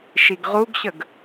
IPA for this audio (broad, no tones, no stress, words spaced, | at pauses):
ʃiɡʁuɡɕəɡ